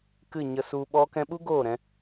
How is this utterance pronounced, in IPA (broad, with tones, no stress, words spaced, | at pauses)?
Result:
kɨ˦˨ɲə˧su˧ ɓɔ˧kɛ̃˧ɓu˦ ɡoː˦˨ɾɛ̃˧